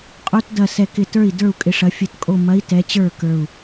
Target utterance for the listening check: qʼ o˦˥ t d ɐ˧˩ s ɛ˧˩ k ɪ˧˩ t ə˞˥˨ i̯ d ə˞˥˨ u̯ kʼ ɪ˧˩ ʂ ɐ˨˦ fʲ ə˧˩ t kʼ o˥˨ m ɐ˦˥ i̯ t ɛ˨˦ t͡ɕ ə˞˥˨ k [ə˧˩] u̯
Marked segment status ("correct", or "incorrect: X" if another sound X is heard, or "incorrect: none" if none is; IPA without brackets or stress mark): incorrect: ə˞˧˩